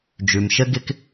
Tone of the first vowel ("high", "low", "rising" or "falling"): low